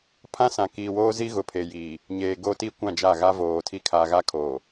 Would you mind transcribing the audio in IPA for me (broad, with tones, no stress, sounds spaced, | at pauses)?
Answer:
pʰ ã˦ s ã˨ k iː˨ w oː˦ z i˦ ɣ ʊ˨ pʰ e˨ j iː˨ | ɲ eː˨ ɡ o˦ t i˦ kʷ ã˦˨ d͡ʒ a˦˨ ɣ a˦ v oː˨ tʰ i˦ kʰ a˨ ɣ a˦ kʰ oː˨